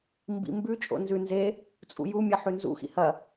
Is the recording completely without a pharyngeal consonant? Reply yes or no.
no